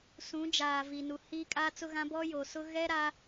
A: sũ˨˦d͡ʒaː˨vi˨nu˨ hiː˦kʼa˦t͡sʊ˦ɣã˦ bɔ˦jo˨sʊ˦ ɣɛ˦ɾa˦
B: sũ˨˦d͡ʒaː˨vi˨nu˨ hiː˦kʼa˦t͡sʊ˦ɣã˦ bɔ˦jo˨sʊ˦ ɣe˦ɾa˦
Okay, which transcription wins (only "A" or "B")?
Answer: A